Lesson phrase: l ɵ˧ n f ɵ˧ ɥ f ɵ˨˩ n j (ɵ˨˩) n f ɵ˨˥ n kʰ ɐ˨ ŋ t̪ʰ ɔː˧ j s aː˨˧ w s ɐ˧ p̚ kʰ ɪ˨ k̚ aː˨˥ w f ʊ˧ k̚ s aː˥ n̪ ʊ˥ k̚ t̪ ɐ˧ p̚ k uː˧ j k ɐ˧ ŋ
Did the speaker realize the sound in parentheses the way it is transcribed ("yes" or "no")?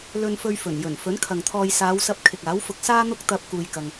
yes